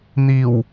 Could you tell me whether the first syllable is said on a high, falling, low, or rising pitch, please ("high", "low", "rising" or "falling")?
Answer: low